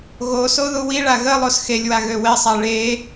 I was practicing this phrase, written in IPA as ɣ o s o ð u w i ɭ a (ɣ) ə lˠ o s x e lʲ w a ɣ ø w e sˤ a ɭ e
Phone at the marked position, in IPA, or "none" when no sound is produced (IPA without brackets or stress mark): ɣ